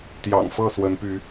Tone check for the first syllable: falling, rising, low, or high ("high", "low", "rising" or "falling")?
low